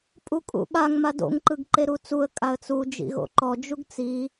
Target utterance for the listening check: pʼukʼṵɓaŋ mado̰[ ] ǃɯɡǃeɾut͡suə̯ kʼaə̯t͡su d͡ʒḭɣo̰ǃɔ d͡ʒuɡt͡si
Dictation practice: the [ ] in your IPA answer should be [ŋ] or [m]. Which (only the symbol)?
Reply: ŋ